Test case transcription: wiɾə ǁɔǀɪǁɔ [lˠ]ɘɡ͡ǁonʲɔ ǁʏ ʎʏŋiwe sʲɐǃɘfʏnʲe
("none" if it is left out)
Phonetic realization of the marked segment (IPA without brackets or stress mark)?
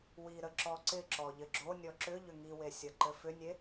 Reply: ʎ